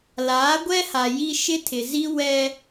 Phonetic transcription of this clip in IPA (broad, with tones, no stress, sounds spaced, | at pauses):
l aː˨˦ ɡʷ ɛ˦ h a˨ j i˦ ʃ ɪ˦ tʰ ɪ˨ z i˦ w ɛ˦